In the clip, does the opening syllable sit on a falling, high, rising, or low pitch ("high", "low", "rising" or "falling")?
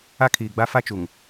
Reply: high